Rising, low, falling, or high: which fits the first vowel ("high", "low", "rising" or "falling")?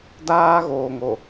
high